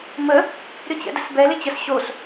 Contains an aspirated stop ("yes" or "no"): no